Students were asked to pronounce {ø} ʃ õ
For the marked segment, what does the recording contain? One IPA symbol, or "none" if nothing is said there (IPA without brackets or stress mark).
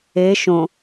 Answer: e